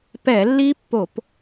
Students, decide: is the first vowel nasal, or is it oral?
oral